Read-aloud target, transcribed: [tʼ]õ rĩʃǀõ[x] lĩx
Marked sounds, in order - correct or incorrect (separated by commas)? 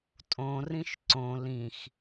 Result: correct, incorrect